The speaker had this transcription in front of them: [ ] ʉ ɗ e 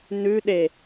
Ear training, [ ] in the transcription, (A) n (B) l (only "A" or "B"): A